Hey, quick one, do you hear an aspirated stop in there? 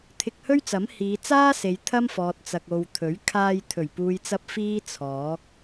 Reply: yes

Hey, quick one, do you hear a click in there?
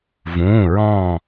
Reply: no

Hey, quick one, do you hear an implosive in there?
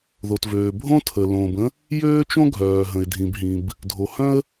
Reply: no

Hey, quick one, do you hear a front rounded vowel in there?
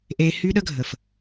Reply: yes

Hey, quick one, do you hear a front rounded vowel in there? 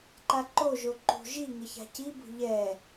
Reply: no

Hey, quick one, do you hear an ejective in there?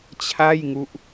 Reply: no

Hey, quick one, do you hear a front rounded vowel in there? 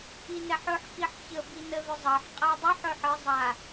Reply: no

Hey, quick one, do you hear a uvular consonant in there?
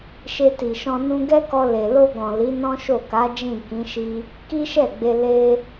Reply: no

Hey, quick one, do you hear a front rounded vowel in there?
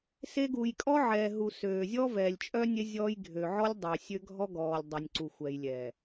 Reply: yes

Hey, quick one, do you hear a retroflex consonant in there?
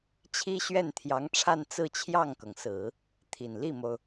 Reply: yes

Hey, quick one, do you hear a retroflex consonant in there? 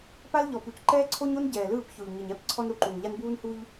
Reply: no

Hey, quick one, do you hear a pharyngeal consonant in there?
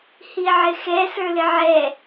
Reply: yes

